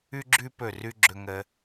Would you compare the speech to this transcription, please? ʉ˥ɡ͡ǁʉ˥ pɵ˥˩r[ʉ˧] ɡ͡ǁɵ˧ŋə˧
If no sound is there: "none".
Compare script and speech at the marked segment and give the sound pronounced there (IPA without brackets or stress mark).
ʉ˥